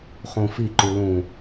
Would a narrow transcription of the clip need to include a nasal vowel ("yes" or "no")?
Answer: yes